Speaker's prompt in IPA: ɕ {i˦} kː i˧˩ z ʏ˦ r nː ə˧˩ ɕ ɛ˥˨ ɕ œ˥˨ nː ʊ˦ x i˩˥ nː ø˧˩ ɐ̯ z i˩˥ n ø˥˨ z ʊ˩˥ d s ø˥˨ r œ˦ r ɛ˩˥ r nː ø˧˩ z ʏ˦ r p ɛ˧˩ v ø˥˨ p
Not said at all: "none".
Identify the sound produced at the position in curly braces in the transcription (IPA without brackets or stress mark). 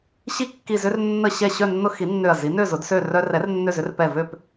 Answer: i˦